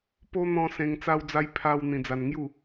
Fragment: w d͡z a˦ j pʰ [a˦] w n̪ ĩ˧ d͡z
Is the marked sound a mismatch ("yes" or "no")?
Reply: no